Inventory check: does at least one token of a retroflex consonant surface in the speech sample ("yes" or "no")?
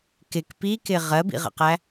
no